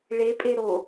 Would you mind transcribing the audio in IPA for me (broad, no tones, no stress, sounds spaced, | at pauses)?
ɭ e pʼ e ɾ o